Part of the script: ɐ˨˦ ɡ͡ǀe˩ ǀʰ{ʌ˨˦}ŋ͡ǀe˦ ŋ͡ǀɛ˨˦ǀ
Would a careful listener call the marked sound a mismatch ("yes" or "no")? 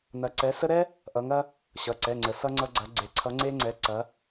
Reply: no